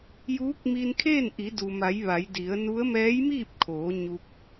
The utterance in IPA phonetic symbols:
juː˧˥k̚mi˧n kʰeː˥˨nʔi˩˧du˩ma˩˧j ʋa˩˧jdi˩˧ə̯ nu˧˥ə̯ mɛː˧˥jmiː˥˨p̚kʰoː˩˧ ɲu˧k̚

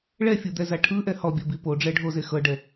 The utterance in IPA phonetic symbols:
ɭɛfʲud̪ɛza ʈʰɯʔɛ hɔbʲɔbi poɖ͡ʐɛɖʱoze xɤɖɛ

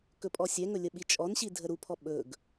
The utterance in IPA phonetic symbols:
kɵpʼɔsʲɛŋɵ lʲəɓit͡ʃʼɔnɕi dʱəɾupʰɔ ɓɵɡ

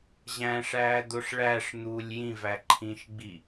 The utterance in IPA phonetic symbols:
ʑæ̃ʂæːd̪oʂ ɭæʂ n̪uːlʲjĩvæ ǃʰĩʃɡ͡bi

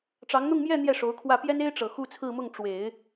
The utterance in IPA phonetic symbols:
ʈ͡ʂɑ˧˥ŋn̪ʊ˥˧ŋmjɛ˥˧ n̪jɛ˥˩ʂo˧˥ʊ̯kʰwä˥˩ pjɛ˥ne˥ɪ̯ʈ͡ʂɤ˨˩ xu˥˧t͡sʰɹ̩˥˧mʊ˥˩ŋ ʈ͡ʂwe˨˩˦ɪ̯

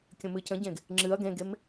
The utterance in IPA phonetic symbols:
kʲə̃mɨcə̃ɟẽɡ | ŋ͡ǁɨɐ̯ ɡẽɡem

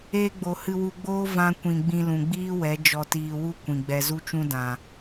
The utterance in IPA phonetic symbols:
eː˧ɡ͡bo˨ hɨ˧wu˧ɡ͡boː˦ vã˧kʷĩ˨ ɡ͡bĩ˧lũ˨ɡ͡biː˦wɛ˨˦ d͡ʒɔ˧tiː˧wu˦ kʷĩ˨ ɡ͡bɛ˨zu˧t͡ʃũ˧ dã˨

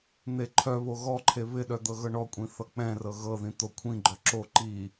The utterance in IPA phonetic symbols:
n̪eǃʰœβo ɣɔǃʰe βɪɗœ d̪ɤɣɤɳɔkʷʼĩ θʌk͡pɛ̃rɤ ɣɤðĩ t̪okʷʰĩɡ͡ǃœ ǁo ǃi

